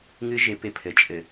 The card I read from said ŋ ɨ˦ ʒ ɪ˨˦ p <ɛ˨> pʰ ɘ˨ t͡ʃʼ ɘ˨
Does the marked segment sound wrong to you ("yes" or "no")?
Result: yes